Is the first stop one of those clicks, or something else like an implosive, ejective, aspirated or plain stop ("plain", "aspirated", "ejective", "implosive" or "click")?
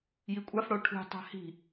ejective